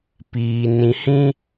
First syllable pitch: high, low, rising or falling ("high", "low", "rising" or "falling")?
low